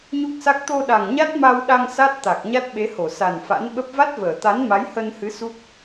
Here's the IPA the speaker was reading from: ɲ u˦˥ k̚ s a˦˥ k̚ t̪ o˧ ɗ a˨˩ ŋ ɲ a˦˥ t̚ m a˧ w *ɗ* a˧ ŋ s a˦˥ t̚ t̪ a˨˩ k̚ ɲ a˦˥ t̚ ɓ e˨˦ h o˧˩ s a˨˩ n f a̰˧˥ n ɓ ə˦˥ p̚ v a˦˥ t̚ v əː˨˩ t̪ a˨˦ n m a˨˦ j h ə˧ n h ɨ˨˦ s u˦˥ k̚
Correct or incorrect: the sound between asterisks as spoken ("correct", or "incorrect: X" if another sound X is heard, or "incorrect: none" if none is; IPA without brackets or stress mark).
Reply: correct